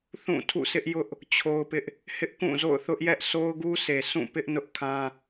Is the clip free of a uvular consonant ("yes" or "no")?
yes